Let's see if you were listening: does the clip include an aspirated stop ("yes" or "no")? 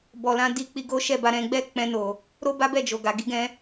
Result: no